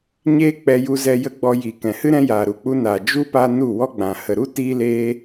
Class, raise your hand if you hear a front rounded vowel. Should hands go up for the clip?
no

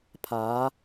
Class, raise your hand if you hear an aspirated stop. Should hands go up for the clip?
yes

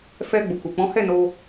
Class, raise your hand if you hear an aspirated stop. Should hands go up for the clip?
no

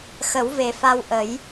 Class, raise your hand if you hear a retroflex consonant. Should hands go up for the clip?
no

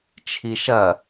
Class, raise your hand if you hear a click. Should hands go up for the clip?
no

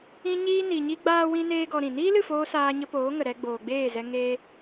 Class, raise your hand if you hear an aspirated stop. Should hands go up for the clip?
no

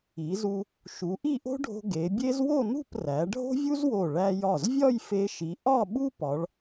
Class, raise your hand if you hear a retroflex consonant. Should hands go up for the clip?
yes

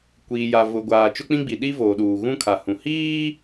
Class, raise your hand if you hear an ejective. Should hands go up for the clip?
no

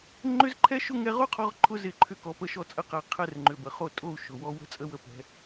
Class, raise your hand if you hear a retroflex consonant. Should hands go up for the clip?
no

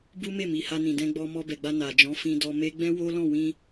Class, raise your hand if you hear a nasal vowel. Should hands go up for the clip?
yes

